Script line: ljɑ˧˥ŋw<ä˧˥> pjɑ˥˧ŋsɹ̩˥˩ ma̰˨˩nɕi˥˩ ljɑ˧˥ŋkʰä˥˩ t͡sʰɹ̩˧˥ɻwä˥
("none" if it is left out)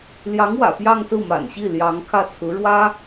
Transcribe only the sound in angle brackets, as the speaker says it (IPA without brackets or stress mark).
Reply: ä̰˨˩